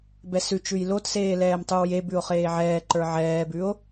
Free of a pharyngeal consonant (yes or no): no